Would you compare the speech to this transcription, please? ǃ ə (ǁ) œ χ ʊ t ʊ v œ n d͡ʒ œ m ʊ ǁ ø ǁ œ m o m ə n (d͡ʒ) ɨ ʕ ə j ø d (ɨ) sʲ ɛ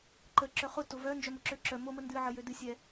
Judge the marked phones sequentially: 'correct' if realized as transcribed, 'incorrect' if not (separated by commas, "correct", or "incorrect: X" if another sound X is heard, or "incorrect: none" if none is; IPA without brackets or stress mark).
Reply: correct, incorrect: d, correct